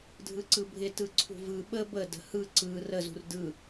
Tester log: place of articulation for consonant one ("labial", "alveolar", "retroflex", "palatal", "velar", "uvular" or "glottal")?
alveolar